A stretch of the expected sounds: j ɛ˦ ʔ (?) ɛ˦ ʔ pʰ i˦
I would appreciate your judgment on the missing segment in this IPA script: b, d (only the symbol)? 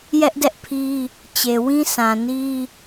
d